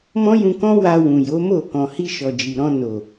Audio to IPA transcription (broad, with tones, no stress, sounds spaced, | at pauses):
m ɔ̃˦ j ũ˧ k ɔ̃˦ w a˧ w ũ˨ j o˨˦ m o˦˨ k ɔ̃˨ h i˧ ʃ ɔ˨ d͡ʒ i˨ ɾ ɔ̃˧ n o˨